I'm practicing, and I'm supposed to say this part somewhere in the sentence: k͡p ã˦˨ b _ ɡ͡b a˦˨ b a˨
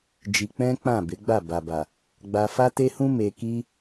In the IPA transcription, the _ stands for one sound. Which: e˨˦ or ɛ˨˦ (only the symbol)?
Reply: e˨˦